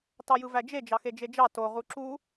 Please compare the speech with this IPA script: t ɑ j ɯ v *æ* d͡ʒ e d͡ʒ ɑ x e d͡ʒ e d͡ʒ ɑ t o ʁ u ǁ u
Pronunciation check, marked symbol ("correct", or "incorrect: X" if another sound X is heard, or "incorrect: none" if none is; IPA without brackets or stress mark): correct